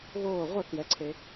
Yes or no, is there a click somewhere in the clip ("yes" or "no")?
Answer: yes